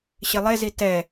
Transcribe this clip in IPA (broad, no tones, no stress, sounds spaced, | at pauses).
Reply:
ɕ ɪ lˠ e z i t ɛ